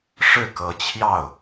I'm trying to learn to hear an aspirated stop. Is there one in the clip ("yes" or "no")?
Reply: yes